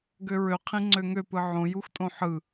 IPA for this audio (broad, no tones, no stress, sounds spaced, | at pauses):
ɡ ø ɹ ø qʰ ĩ ŋ͡ǀ ø ŋ ø p ɯ ʕ õ j u x tʼ õ ħ ɯ